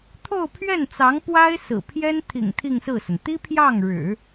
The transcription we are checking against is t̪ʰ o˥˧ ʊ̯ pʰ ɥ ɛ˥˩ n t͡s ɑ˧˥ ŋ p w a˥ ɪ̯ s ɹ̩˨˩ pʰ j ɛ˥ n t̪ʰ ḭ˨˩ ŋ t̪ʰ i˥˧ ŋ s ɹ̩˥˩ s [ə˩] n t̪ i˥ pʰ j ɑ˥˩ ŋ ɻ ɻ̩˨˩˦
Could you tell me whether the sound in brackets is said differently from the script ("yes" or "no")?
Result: no